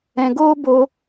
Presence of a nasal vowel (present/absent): present